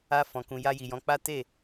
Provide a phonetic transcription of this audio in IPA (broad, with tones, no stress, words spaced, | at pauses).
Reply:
a˧fɔ̃˨ kũ˨ja˧ji˨jɔ̃˨˦ k͡pa˦ te˦˨